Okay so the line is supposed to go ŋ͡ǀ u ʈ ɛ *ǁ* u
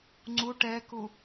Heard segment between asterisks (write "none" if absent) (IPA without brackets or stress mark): k